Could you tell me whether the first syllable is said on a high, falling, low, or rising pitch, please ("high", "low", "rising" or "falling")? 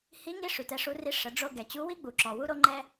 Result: rising